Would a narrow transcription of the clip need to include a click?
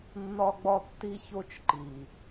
yes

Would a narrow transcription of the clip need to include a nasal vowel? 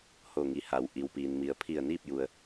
no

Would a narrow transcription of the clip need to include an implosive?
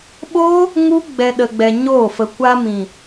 yes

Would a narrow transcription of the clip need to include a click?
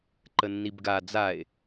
yes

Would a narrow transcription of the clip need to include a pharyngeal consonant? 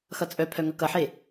yes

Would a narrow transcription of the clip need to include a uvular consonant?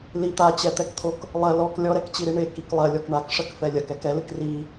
no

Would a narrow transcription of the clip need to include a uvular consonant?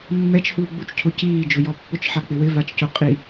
yes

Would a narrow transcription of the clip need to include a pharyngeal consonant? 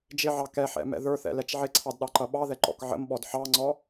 yes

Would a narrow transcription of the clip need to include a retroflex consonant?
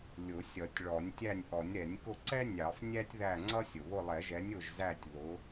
yes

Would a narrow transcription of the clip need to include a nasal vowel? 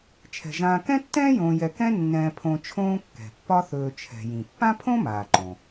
yes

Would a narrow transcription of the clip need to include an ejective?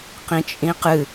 yes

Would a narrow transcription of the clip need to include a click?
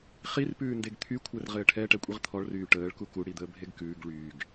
no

